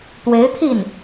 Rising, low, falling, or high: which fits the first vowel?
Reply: rising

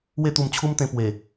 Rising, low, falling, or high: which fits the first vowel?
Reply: falling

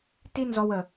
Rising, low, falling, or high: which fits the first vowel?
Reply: high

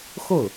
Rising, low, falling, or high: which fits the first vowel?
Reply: falling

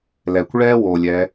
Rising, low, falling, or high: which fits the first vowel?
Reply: low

